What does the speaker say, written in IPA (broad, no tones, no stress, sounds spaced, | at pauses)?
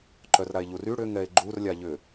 ǃ œ r ɾ a e̯ ʎ u r y ɽ ʏ ŋ ɛ e̯ ɡ͡ǃ u r lʲ a ʎ ʏ